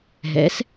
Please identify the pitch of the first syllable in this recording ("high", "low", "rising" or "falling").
rising